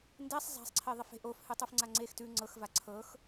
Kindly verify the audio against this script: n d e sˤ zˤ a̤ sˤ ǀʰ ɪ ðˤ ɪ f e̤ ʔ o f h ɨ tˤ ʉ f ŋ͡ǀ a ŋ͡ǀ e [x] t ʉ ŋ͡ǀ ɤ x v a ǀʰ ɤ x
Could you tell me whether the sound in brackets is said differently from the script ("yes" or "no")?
no